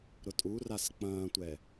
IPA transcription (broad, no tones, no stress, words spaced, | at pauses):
ɾʊtʼuras k͡pɐ̃ːtʷɛ